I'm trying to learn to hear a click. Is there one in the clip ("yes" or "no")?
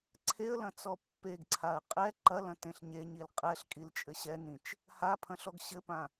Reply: yes